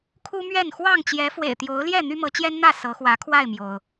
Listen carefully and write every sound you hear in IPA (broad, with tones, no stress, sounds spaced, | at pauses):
kʰ u˦ m ɥ ɛ˥˨ n x w ɑ˥˨ ŋ t͡ɕ j ɛ˨˦ f w ḛ˨˩ ɪ̯ t̪ j o˨˦ ʊ̯ l j ɛ˥˨ n̪ y˦ m ɤ˨˦ t͡ɕ j ɛ˦ n n̪ ä˥˨ s ɤ˨˦ x w ä˨˦ kʰ w a˥˨ ɪ̯ m j o˩ ʊ̯